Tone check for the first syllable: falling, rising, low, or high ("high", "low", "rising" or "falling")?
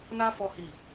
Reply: high